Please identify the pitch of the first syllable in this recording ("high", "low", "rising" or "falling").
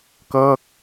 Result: falling